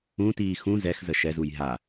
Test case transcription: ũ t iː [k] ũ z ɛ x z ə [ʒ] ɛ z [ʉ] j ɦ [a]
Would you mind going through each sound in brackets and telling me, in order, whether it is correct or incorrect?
incorrect: x, incorrect: ʃ, incorrect: u, correct

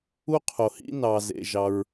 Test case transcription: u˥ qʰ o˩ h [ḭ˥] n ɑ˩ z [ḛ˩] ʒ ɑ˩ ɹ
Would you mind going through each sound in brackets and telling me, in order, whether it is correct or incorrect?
correct, correct

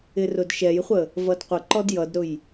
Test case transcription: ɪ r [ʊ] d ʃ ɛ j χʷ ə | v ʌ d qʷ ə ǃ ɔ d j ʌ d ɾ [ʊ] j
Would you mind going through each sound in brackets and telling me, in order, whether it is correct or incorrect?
correct, correct

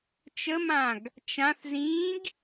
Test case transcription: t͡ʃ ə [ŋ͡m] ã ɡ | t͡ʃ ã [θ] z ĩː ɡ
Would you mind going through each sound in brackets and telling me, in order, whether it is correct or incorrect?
incorrect: m, correct

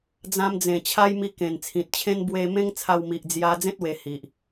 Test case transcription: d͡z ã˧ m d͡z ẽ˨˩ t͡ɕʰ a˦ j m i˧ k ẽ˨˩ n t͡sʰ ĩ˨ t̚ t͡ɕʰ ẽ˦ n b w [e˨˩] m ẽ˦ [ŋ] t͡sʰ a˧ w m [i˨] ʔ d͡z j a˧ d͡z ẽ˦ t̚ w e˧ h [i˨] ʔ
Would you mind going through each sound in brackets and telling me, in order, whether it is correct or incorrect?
incorrect: e˧, correct, correct, correct

